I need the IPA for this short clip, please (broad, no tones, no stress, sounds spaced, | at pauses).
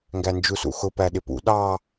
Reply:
ŋ ɡ æ n d͡ʒ u s ṵ x ʊ p æ ɗ ɪ p ṵ ɗ ɑ